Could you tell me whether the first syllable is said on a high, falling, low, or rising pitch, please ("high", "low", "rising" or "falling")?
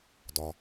low